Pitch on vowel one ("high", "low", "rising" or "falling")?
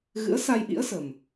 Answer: rising